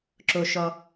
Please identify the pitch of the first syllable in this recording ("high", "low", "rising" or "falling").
low